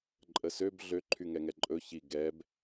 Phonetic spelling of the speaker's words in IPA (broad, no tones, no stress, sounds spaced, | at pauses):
ǃʼ ə s ø b ɮ ø ǃʰ y ŋ ɛ ŋ ɛ ǃʼ ɵ ç i ɡ ɛ b